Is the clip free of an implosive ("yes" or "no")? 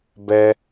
yes